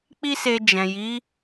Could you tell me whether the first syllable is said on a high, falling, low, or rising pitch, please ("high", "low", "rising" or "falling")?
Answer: high